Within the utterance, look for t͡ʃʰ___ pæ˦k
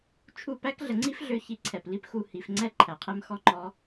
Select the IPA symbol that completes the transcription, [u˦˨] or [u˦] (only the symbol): u˦˨